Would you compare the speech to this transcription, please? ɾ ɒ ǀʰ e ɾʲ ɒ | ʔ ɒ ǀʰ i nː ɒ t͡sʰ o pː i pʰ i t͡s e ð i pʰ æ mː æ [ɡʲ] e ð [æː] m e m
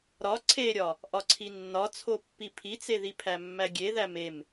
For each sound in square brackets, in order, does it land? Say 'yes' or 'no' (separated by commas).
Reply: yes, no